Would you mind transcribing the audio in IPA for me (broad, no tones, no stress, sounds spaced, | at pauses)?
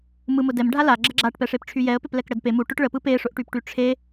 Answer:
m ɯ m ʊ d ɛ m ɖʱ a l a ɡ͡ǁ ə ɡ͡ǁ a ʈ p ɛ ʂ e p ʈ͡ʂʰ y j ɛ ə̯ p e p l ɛ k ɽ ə d p e m u ʈ ʊ ʈ ɭ ə p ɯ p e ʂ ʊ ʔ ʈ y p ʈ y ʈ͡ʂʰ e